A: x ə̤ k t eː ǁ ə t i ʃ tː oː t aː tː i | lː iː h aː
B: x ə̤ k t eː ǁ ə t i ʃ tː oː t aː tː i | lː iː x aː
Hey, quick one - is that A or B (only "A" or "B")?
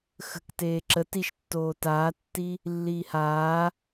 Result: A